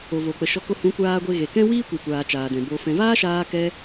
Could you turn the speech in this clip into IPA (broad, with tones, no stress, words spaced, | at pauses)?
o˨vo˨k͡pə˨ʃɔ˧ ko˧hũ˨˦kʷaː˧ ɡʷe˧ ɣe˨kɛ̃˦ wiː˦kʷe˨kʷaː˨ t͡ʃaː˨dɛ̃˨bo˧fɛ̃˧ vaː˦ʃaː˧kɛ˧